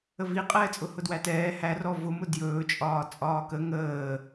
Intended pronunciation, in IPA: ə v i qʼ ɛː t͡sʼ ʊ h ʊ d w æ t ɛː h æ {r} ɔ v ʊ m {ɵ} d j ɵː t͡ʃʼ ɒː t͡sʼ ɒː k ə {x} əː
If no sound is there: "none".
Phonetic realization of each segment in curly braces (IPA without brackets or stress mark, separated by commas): r, ʊ, ŋ